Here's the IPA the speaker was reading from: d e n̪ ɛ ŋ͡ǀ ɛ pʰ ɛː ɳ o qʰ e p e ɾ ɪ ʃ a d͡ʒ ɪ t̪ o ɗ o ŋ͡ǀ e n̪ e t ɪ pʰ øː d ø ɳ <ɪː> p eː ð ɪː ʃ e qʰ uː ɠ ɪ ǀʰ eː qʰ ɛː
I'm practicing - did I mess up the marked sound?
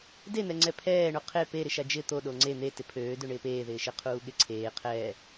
no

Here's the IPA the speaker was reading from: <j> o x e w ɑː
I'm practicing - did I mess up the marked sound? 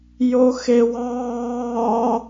no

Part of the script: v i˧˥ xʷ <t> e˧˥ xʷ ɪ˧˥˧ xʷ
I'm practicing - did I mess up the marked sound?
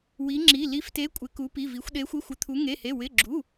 yes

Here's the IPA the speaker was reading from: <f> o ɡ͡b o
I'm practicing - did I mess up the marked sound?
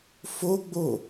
no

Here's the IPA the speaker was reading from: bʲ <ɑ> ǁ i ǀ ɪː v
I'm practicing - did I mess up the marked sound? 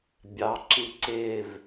no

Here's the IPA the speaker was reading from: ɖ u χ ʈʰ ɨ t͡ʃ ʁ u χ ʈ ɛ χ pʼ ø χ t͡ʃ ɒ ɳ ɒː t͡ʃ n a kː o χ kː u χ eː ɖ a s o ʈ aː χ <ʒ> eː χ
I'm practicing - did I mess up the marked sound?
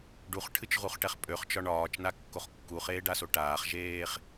no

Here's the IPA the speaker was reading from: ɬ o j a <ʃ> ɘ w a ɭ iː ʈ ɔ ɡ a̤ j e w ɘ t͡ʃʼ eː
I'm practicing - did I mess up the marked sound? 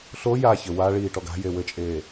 yes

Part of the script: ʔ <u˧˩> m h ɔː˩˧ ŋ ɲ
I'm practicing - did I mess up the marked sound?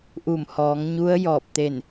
no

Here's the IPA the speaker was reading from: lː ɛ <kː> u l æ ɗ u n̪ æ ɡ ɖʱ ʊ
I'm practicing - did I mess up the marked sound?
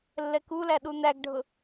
yes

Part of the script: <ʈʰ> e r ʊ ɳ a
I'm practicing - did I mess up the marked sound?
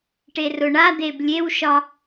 yes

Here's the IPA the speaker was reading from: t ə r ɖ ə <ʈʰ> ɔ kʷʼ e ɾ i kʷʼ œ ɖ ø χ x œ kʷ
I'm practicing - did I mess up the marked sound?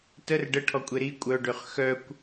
no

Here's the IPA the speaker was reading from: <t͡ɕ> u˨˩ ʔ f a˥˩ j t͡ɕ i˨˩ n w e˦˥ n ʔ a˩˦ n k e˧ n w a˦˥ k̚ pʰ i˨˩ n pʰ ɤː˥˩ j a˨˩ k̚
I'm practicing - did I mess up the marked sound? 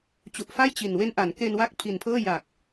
no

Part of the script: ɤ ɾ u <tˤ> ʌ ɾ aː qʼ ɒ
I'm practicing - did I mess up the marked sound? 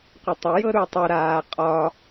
no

